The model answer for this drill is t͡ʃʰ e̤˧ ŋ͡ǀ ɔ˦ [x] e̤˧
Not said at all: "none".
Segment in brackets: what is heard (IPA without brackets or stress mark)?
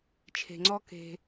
k